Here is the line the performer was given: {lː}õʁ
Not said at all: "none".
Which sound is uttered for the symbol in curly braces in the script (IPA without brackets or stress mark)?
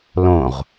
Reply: l